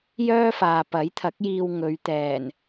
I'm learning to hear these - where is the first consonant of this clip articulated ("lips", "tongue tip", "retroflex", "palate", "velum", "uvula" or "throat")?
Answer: palate